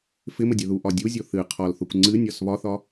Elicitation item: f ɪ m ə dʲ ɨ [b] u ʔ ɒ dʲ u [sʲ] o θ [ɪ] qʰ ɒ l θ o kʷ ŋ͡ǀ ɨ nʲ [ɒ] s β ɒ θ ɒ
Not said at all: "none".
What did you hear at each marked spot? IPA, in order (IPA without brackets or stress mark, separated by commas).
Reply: ð, zʲ, ɨ, ɒ